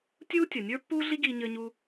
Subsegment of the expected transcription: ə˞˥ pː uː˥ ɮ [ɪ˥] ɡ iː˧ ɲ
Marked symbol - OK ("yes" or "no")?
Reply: no